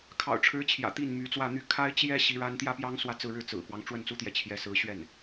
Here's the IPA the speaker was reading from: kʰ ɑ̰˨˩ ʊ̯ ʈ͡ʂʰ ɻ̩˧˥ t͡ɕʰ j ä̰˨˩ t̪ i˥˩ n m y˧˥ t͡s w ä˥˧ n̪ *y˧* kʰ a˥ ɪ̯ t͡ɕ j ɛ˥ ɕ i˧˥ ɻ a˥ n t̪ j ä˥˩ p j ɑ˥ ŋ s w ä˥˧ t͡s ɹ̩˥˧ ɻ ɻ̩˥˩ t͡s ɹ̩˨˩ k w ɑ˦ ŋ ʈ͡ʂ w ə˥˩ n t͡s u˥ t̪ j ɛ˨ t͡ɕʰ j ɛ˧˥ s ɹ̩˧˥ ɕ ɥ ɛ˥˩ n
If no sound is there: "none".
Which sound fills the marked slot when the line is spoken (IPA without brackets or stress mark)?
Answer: y˥˩